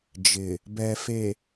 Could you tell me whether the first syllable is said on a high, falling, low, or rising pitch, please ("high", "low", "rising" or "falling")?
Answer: low